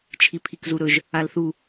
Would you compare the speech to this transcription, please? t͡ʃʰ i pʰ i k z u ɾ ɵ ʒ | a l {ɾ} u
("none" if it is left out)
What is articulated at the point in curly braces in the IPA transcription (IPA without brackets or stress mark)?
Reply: θ